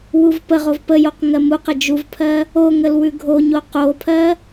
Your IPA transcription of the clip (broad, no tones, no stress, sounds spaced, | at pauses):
w u v p ə ʁ o v p ə j o q ŋ ɜ m u q ə d͡ʒ u v pʰ ɜ | o ŋ ə l w ʉ ɡʱ o ɲ o q o pʰ ɜ